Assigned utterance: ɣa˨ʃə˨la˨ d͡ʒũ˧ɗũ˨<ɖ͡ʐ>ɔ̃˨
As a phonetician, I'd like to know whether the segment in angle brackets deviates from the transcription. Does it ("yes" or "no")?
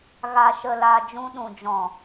yes